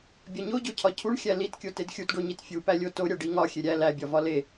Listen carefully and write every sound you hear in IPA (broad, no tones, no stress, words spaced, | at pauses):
bʲɒɲoɟocʰɒ cʰuɳxʲæ litkʲo tedxʲutɖoɲit fʲupælʲo to ɾʲæɖi ŋɒ xʲeɾʲæ læbʲɒvɒ le